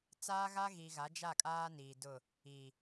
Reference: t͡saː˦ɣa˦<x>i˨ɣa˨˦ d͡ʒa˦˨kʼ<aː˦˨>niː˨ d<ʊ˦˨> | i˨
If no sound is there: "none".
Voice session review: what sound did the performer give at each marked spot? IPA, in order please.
ɣ, aː˦, ʊ˦˨

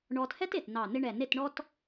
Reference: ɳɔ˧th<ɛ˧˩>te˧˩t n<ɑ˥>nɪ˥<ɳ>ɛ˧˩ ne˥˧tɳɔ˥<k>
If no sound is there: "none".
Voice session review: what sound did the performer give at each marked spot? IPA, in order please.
ɛ˥, ɑ˧˩, ɳ, t

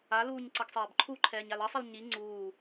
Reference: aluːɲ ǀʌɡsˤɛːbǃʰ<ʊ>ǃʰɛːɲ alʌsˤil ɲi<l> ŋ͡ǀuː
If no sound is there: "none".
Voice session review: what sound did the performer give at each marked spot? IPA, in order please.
u, none

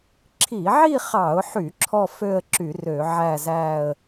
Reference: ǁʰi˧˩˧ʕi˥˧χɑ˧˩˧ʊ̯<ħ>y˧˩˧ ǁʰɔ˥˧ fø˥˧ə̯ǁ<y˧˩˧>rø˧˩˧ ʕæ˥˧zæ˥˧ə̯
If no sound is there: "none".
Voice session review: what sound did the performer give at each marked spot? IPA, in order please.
ħ, y˧˩˧

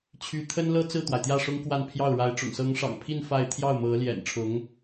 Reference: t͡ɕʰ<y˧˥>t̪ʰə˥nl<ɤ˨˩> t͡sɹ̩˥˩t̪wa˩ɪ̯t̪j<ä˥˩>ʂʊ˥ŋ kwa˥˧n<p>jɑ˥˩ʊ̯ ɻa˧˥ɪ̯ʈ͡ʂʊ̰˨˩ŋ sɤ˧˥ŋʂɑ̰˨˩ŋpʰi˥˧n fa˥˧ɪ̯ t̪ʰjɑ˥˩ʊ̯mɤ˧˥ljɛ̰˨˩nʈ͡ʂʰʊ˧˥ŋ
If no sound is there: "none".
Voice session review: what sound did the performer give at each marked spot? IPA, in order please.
y˧˥, ɤ˥, ä˥˩, pʰ

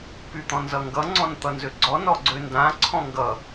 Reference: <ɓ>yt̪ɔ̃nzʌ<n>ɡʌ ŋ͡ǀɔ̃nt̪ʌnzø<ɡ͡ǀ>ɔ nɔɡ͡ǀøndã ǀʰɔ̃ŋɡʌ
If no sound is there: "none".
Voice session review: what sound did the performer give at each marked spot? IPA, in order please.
p, ŋ, ɡ͡ǀ

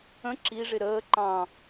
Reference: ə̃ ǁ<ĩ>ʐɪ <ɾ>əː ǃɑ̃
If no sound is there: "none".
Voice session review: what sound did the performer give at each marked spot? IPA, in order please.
i, ɾ

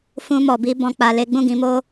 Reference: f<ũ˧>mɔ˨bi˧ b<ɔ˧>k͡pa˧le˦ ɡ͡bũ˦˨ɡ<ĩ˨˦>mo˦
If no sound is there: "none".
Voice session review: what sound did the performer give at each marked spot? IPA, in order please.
ũ˧, ɔ̃˧, ĩ˨˦

